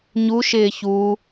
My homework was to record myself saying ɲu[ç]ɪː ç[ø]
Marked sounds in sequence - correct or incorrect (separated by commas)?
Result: incorrect, incorrect